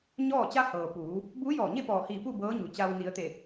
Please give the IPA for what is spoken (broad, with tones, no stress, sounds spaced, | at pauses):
ɲ ɔː˥˨ t͡ɕ a˧ h ɤː˩ p uː˩˧ | b uː˧˥ j ɔː˧˩ ɲ e˥˨ p ɔː˧˩ h iː˧˩ p u˥˨ b ɤː˧˥ ɲ u˩ t͡ɕ a˧ w n i˩˧ ə̯ t̪ e˧˩